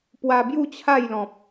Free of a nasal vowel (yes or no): no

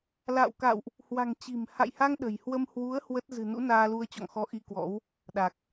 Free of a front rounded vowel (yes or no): yes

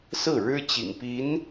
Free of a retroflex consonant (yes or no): no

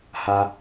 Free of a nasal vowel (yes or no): yes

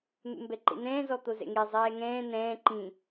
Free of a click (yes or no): no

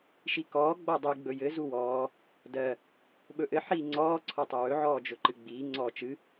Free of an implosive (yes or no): no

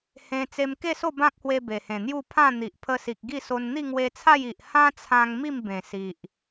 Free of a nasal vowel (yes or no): no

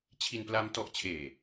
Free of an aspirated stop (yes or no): no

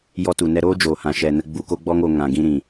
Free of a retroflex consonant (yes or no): yes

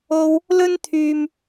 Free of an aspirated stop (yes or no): no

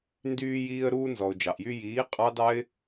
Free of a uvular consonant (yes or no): no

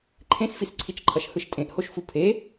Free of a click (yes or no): no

